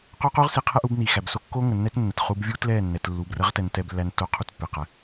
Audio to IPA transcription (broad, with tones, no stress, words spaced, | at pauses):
qo˦qu˦ʁ si˨ qʰɛ˦ʔu˨˦bni˨xæ˨b so˦kːo˦ŋə˨ nːɛ˦t nːə˨tχu˦b vʲu˦tlɛ˦˨nːɛ˨t lːu˨brə˨˦ʁtɛ˨n tɛ˦blːæ˦nto˦ qʰu˦tpːe˨qæ˦